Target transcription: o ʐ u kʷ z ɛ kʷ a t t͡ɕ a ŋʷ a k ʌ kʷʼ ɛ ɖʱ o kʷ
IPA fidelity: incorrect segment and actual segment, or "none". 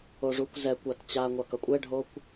none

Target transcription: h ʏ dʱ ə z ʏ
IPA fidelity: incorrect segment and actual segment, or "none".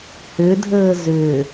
ə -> əː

